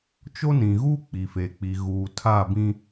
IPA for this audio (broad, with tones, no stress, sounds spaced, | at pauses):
t͡ʃ o˦ n ĩ˨ ɣ uː˦ k͡p i˨ f e˨ k͡p i˨ ɣ uː˨ tʰ a˦˨ b ĩ˦